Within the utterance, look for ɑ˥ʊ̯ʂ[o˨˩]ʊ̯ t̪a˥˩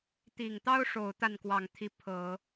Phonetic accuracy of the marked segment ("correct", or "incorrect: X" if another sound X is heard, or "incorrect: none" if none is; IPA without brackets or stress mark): correct